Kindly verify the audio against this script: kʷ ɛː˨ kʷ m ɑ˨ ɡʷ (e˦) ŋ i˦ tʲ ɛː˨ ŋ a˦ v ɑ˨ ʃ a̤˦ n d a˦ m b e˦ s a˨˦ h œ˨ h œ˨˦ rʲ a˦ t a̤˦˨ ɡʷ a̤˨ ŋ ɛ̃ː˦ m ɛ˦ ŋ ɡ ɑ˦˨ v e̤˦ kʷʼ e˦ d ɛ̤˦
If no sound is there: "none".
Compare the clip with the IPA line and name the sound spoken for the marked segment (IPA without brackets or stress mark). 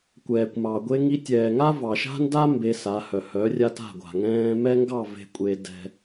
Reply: e˦